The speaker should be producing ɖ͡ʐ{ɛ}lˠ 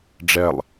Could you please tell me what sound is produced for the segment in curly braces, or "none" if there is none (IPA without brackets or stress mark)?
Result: ɛ